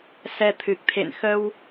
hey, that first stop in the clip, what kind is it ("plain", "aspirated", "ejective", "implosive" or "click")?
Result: aspirated